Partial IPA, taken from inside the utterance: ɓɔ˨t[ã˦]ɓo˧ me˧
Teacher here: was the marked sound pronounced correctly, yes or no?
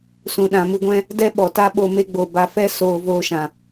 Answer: no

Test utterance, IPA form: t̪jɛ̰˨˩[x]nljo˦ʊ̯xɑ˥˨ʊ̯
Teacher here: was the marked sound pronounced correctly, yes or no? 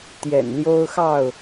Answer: no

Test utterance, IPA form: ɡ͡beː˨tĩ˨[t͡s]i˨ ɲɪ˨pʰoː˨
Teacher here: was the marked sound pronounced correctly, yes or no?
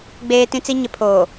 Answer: yes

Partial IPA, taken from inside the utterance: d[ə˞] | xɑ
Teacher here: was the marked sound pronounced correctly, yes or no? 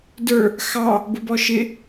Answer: yes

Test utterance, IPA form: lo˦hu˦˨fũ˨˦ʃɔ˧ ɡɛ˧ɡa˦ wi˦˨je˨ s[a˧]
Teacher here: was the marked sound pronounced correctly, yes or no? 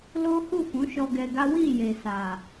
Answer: no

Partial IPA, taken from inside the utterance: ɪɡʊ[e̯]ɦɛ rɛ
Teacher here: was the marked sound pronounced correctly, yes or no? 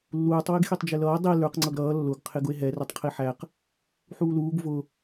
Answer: yes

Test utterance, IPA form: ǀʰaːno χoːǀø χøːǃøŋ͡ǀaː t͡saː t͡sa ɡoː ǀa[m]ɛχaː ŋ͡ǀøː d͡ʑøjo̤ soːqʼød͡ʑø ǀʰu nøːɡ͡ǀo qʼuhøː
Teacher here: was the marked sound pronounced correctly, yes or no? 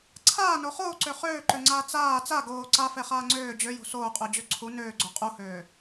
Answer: no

